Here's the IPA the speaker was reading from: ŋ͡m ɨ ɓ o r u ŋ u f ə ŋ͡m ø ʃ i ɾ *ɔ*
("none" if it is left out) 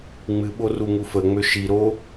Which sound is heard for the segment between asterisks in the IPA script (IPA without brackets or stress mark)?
o